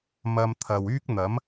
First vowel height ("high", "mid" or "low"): low